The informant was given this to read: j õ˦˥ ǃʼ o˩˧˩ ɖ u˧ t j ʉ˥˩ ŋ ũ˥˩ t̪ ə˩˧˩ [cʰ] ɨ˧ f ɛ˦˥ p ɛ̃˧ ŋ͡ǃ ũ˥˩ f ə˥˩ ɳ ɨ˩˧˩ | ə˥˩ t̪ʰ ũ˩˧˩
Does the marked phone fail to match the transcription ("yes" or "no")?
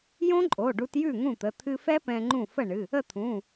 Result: yes